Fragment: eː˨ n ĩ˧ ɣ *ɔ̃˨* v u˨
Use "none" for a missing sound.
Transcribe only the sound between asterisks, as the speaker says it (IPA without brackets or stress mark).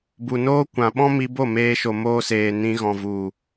ɔ̃˨